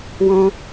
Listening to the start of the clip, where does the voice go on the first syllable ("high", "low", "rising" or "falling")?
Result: high